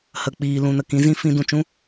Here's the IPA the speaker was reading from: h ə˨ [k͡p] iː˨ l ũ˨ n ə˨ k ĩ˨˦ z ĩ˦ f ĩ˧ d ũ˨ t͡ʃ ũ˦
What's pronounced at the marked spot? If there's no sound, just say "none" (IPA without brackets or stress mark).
k͡p